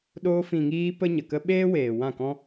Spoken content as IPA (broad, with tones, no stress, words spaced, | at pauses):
ɗoː˧ fĩ˨ŋiː˧ pə˦ ɲə˨kə˦ ɓeː˦weː˨ wã˦˨kɔ̃˦